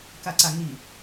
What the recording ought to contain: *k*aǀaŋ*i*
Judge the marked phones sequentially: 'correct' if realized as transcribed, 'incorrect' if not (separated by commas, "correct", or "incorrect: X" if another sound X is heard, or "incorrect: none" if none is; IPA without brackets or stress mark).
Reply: correct, correct